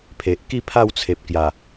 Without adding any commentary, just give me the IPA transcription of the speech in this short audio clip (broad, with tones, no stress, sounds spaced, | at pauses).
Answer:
pʰ e˨ ʔ k i˥˧ pʰ a˥˧ w t͡sʰ e˨ p̚ k j a˨˩